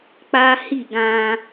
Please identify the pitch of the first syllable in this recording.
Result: high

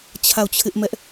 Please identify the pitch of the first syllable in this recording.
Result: falling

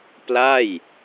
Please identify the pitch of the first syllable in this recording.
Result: falling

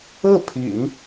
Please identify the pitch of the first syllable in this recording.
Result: falling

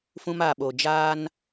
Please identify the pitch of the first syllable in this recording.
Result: high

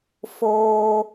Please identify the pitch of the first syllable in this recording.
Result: high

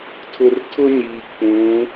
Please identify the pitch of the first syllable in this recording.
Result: low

